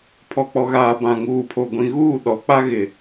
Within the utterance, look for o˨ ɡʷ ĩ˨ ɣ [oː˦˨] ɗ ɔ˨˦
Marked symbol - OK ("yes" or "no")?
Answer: no